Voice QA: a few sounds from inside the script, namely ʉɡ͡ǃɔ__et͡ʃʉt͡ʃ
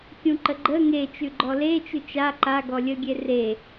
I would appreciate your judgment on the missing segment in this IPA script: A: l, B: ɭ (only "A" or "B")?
A